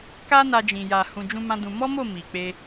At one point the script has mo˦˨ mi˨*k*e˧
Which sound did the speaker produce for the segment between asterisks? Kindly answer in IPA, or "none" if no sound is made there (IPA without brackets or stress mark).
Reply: k͡p